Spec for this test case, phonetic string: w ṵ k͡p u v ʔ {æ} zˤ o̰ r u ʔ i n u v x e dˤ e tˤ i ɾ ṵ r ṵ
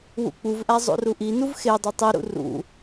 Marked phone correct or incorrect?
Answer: correct